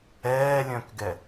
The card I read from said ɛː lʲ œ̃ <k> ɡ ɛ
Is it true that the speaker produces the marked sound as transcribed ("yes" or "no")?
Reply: yes